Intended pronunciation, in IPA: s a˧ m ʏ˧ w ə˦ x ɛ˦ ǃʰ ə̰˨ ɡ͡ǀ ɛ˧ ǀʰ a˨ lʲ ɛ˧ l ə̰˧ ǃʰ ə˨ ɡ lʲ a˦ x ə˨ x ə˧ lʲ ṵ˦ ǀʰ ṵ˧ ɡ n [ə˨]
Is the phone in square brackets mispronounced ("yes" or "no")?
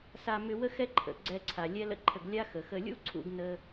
yes